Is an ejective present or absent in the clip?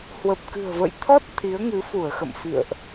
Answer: absent